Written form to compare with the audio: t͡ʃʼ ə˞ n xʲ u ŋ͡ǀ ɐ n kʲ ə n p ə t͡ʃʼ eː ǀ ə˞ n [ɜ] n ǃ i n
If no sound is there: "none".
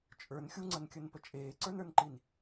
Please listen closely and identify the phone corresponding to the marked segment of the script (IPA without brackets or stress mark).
ə˞